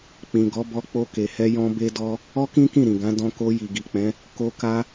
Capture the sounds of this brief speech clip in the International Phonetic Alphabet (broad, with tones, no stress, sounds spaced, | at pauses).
k͡p ĩ˨ ɡ ɔ˨˦ b ɔ˧ k͡p o˧ k e˨ h ɛ˧ j ɔ̃˧ b e˧ d ɔ˧ | ɔ˦ k ĩ˦ k ĩ˦˨ ɾ ĩ˨ ɡ ã˨˦ d ɔ̃˧ k o˧ j i˨ ɡ i˨ k͡p ɛ̃˨˦ | k o˧ k a˧